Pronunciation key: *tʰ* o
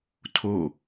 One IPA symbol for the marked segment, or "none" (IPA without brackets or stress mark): tʰ